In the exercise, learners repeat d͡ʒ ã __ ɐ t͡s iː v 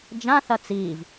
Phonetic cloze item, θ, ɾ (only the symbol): θ